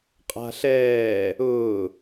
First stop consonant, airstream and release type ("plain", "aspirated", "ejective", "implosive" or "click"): ejective